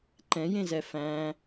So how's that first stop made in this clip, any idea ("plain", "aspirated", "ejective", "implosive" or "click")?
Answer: click